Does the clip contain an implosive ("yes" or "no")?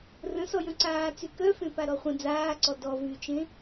no